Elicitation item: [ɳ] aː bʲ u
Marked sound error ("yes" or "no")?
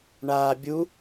no